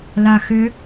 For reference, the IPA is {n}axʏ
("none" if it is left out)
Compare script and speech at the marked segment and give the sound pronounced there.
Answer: l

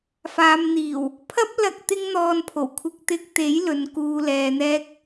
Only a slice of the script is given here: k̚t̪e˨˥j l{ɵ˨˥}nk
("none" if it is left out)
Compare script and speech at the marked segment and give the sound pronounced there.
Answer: ɵ˨˧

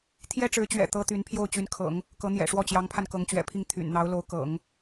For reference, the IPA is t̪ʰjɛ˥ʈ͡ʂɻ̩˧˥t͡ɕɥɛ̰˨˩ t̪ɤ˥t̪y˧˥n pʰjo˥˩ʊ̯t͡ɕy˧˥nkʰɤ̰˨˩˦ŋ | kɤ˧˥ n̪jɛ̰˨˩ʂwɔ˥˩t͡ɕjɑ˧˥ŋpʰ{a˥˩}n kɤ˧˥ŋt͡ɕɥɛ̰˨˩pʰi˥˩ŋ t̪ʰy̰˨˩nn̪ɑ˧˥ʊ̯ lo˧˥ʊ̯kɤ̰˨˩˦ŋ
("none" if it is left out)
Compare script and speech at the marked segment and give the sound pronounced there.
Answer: a˧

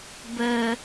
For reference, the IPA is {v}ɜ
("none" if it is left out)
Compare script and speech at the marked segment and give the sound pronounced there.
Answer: b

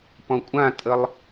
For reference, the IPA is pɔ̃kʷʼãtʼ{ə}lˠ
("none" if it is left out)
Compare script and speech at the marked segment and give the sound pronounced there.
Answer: ə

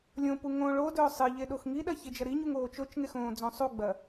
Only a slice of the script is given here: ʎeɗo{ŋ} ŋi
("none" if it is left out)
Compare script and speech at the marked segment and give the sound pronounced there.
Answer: x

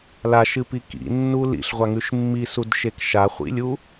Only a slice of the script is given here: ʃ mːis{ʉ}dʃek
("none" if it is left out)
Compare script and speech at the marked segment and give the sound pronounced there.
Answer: u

